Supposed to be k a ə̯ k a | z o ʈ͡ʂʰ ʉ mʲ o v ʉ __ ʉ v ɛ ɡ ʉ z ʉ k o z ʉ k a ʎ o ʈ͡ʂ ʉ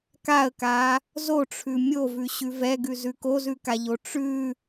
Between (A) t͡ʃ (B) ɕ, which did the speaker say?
B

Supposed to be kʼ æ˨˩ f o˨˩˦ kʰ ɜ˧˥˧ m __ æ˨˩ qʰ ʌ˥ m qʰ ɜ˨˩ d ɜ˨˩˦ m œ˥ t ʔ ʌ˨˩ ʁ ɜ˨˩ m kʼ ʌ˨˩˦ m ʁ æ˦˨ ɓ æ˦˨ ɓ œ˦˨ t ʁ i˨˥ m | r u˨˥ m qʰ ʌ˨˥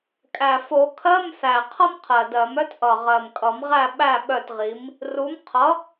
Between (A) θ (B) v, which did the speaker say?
A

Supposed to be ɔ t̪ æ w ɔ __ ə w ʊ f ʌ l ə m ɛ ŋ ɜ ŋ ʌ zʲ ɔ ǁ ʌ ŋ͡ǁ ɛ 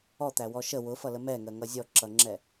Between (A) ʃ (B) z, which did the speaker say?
A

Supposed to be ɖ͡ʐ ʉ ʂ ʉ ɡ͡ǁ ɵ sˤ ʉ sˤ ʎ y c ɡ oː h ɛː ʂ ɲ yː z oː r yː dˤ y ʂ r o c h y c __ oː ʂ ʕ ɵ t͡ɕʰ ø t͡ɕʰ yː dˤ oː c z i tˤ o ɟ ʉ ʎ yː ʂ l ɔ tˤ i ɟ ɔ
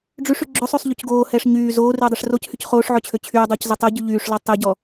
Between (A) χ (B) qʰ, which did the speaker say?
A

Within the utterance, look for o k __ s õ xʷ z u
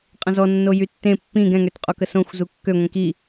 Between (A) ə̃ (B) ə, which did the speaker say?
B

